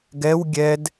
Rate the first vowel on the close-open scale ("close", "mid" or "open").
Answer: mid